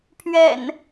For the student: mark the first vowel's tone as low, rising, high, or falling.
low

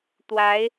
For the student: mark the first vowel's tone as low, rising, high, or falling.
rising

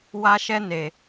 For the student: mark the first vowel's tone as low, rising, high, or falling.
high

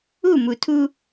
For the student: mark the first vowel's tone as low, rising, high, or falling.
falling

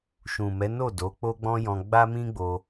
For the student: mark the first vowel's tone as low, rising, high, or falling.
low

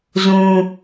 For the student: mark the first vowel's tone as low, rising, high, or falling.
low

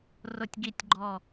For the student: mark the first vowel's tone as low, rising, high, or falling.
falling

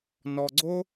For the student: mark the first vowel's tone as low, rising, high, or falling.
low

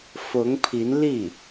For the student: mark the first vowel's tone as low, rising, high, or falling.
rising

